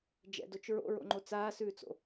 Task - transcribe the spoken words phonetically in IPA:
d͡ʒ ɛ̰ d o t͡ʃ ɹ o̰ ɹ o̰ ŋ͡ǃ o t͡s aː s ʉː t͡s o̰

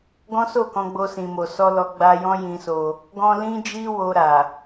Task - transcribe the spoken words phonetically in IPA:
ɡ ɔ̃˦ s o˦˨ k ɔ̃˧ ɡ͡b o˧ s ĩ˨ m o˨ s ɔ˧ l ɔ˧ ɡ͡b a˧ j ɔ̃˦ j ĩ˧ s o˧ | ɡ ɔ̃˧ l ĩ˦ d͡ʒ i˦ w o˧ ɾ a˨

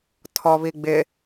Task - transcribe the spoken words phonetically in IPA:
tʰ ɔ β i ɡ͡b ɪ

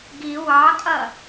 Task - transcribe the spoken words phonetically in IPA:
ɡ i w ɑ kʼ ʌ

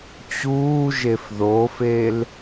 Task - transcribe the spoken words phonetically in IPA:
t͡ɕ uː ʒ e f ð o f e l

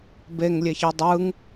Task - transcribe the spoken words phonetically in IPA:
b e ŋ lʲ e ç i dˤ ɯ ŋ

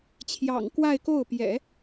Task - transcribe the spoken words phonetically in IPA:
t͡ɕʰ j ɑ̰˨˩ ŋ k w a˥˧ ɪ̯ k o˥˩ ʊ̯ p j ɛ̰˨˩˦

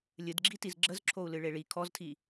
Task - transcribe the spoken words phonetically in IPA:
lʲ ɨ d ɡ͡ǁ i t i z ɡ͡ǁ ə z ǁʰ o u̯ l ɨ ɭ e ɭ i kʰ ɔ z tʰ i

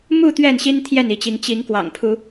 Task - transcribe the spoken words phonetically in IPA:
m u˥˨ t̪ ɥ ɛ˥˨ n ɕ i˦ n t̪ʰ j ɛ˥˨ n i˨˦ t͡ɕ i˨˦ ŋ t͡ɕ i˨˦ ŋ k w ɑ̰˨˩ ŋ pʰ u˨˦

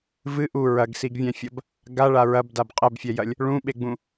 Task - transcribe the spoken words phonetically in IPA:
v ɨ ʔ u ɹ ɐ ɡ s i ɡ vʲ ɛ̃ fʲ ɐ b | ɡ a ɭ a ɹ ɐ b d a b qʼ ɘ b fʲ ɛ j ɐ lʲ | ɭ ũ ɓ e ɡ͡b ũ

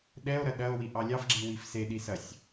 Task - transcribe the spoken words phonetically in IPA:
ɗ ɛ o̯ ɾ ɐ ɗ ɐ o̯ w i ʔ ɑ lʲ ɑ f ɡ͡ǁ i w i f s e ɗ i s ɐ sʲ

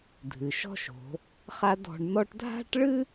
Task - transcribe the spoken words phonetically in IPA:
dʱ ɨ˩ ʃ ɔ̤˥ ʃ o̤˩˧ | χ a˥ d ɔ̤˧ ɳ n ɔ˥ ʈ dʱ a̤˥ ʈ ɭ ɨ˥

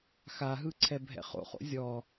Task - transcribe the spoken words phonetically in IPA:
x a ɦ ɯ ǀʰ ɛ bʱ ɛ̰ χ o̰ χ o̰ zʲ ɔ

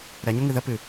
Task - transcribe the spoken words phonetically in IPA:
ɾ ɛ ɲ ɵ ŋ ɨ ð ə p ɨ

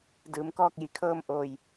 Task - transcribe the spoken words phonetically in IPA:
d ɯː˩˧ m k ɔː˥˨ k̚ j i˩ kʰ ɤː˥˨ m ʔ oː˧˩ j

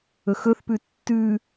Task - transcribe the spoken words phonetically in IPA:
ɵ x ɵ θ p ʉ tː ʉ

